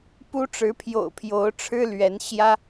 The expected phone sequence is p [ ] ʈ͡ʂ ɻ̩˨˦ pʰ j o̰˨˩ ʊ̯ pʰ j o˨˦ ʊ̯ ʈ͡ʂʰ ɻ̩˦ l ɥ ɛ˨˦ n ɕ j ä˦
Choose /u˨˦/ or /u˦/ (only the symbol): u˦